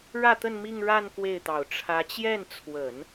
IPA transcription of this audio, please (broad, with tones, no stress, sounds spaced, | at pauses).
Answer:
ɻ ä˥˧ t̪ ə˥˧ n m i˥˧ ŋ ɻ a˥˧ n k w e˥˩ ɪ̯ t̪ ɑ˨˩ ʊ̯ ʈ͡ʂʰ ä˧˥ t͡ɕ j ɛ˥˩ n t͡sʰ w ə˨˩˦ n